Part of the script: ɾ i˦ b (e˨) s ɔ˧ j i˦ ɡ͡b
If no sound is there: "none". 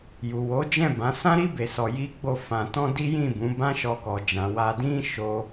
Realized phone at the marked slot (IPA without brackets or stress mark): e˧